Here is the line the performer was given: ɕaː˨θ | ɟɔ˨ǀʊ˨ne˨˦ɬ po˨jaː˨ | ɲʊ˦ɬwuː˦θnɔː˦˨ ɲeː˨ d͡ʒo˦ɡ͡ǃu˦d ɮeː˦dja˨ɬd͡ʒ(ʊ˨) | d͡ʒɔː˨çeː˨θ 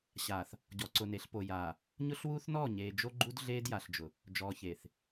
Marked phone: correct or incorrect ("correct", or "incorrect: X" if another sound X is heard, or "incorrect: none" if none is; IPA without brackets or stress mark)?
correct